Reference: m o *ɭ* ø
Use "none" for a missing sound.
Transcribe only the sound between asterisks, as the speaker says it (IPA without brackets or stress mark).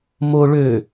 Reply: ɭ